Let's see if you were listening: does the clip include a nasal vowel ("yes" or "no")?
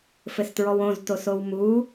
yes